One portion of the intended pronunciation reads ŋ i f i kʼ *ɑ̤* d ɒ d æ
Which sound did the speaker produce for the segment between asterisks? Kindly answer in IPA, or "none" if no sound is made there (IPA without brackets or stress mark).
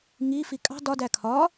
ɑ̤